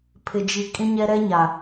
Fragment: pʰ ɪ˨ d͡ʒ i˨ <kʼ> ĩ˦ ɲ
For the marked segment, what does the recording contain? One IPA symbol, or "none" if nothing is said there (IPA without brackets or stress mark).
kʼ